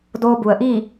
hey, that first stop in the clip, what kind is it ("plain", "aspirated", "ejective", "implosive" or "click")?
plain